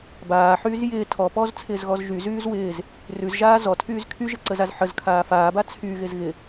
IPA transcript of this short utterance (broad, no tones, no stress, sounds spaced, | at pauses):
b aː ħ yː z j ɪː tʰ ɔ p ɔː z t͡sʰ ɪː z ɣ ɔ z ʒ y z yː z w ɪː z | r ʉ z ʒ aː z ɔ tʰ yː z kʰ y ʒ ɪ ǀ ə z a z ħ ə z kʰ aː f aː b a t͡sʰ y ɣ ɪ z ɣ ɪ